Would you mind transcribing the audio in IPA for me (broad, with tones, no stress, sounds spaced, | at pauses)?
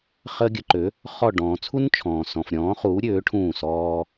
χ əː˦ ɡʲ ə˨˥ ǃ ø˨˥ | χ ɔ˦˨ ɖ ɔ̃ː˨ t͡sʰ u˦ n t͡ʃʰ ɔ̃ː˨ s ɔ̃˨ f ɾʲ ɔ̃ː˨˥ χ uː˨˥ ɾʲ øː˨˥ ʈʰ ũː˦˨ s ɔː˦